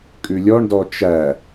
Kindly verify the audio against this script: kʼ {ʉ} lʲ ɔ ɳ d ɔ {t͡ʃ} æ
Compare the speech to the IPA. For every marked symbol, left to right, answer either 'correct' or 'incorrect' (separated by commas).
correct, correct